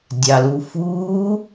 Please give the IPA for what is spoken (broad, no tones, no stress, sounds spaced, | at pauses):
dʲ ɑ l u f uː